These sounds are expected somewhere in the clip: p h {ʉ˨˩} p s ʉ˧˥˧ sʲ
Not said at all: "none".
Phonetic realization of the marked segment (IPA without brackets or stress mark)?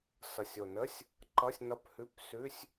ʉ˧˥˧